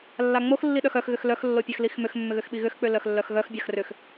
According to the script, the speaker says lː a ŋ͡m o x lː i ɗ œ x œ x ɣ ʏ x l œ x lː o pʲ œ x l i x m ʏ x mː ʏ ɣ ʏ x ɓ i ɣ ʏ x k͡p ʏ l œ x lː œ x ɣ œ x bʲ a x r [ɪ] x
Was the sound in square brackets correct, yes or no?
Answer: no